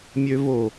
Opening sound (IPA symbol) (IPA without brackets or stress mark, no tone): mʲ